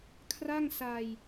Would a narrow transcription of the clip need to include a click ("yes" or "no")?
no